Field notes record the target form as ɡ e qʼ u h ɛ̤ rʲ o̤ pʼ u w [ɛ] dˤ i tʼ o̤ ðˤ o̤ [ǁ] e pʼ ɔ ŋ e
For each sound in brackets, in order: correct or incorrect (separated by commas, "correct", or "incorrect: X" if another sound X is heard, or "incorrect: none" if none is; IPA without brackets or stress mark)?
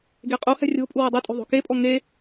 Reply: correct, incorrect: k